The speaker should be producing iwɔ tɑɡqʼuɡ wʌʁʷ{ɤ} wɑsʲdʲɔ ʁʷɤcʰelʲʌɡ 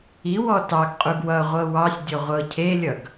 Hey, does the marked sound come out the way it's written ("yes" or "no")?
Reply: yes